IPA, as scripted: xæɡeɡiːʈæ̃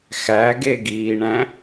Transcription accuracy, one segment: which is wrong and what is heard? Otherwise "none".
ʈ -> ɳ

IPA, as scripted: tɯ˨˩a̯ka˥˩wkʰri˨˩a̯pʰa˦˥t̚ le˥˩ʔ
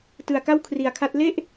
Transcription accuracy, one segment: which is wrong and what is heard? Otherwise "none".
pʰ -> kʰ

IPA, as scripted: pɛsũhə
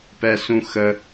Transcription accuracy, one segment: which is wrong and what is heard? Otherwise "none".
h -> x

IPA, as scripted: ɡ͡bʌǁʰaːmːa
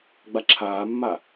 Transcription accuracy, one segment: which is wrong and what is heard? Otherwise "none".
ʌ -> a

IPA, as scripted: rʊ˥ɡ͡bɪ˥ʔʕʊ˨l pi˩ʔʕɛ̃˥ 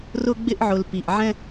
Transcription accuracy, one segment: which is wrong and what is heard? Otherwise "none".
none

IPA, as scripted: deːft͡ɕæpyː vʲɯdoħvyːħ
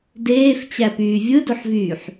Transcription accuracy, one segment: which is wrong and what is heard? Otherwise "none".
none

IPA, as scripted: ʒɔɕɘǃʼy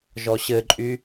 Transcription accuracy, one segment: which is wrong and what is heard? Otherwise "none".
none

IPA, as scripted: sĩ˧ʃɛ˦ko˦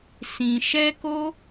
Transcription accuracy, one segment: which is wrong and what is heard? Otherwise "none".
none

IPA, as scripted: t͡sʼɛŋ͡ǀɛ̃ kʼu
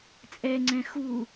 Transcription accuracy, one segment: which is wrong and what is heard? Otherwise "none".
kʼ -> x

